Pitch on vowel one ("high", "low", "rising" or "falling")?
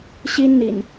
high